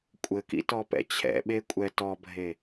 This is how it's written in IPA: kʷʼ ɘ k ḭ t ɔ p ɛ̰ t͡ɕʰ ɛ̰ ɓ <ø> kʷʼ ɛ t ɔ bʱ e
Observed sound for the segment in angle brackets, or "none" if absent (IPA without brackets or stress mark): e